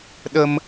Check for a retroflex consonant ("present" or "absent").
absent